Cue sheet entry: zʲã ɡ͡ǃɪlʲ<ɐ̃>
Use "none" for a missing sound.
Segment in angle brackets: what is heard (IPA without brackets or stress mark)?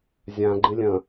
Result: ɐ̃